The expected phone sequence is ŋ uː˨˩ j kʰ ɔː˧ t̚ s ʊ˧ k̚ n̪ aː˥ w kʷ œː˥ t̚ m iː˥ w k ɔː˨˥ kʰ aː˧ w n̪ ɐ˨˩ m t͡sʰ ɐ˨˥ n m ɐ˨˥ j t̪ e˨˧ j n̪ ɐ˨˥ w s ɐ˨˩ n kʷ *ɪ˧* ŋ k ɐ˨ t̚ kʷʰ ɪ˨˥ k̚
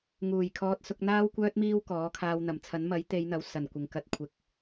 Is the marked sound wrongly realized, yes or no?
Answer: yes